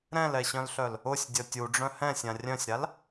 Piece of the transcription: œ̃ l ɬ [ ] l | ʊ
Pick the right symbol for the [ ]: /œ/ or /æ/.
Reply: œ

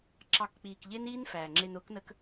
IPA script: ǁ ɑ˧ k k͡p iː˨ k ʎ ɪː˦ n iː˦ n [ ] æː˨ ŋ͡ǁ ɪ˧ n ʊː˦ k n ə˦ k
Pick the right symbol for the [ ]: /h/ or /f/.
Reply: f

